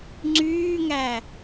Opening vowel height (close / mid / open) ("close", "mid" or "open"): close